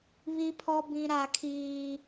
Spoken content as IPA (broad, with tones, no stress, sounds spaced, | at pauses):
β i˦ pʰ ɔ˦ b ĩ˦ ɾ a˦ kʰ iː˦